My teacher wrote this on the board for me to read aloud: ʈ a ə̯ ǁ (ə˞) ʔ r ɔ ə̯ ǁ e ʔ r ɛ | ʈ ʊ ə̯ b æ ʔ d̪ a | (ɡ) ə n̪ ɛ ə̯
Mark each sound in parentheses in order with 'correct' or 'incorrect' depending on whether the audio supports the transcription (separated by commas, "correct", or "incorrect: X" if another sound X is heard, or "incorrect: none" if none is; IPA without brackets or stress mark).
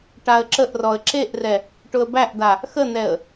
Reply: incorrect: ə, incorrect: x